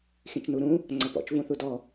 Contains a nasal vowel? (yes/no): yes